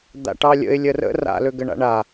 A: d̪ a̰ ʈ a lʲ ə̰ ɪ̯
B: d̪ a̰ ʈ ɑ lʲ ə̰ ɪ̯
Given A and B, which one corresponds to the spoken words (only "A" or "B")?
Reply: B